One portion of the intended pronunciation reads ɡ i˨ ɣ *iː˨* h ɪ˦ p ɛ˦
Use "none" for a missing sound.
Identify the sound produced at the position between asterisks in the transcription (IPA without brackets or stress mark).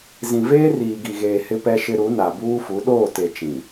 eː˨